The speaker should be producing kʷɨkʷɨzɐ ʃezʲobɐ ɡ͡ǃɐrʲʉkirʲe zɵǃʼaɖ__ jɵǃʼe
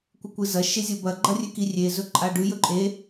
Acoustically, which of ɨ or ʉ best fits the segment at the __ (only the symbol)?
ʉ